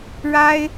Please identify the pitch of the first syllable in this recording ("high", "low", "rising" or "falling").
high